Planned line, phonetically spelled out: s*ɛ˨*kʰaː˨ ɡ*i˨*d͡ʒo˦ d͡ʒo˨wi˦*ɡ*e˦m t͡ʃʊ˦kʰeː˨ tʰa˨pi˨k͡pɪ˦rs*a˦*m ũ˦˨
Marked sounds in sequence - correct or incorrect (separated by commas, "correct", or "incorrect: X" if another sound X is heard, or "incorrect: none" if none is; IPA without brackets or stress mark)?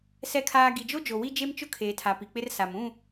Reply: correct, correct, incorrect: d͡ʒ, incorrect: a˨